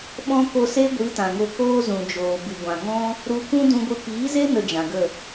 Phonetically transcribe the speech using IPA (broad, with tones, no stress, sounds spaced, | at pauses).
ɓ ɔ̃˦ k o˧ s e˦ ɡʷ i˨˦ t ã˨ ŋ o˧ k oː˦ z ũ˨ d͡ʒ oː˨ b ɨ˨ ɡʷ ã˨ ŋ ɔ̃˦ | ɾ u˧ kʷ ũ˦ d ũ˧ ɡʷ ɨ˧ p iː˨˦ z e˦ n ə˧ d͡ʒ ã˨ ɡ ə˦˨